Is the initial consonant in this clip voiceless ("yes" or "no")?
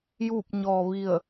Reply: no